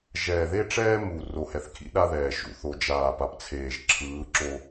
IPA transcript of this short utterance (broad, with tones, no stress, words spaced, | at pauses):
ʒɛː˨ðe˦ʈ͡ʂɛː˦ mu˨ ro˨ hɛ˨θkʰḭ˦ ɗa˦ðɛː˨ʃṵ˨ θo˨d͡ʒaː˨ pa˨pt͡sʰeː˨ʒ ǁʰɯː˨˦ ǁo˦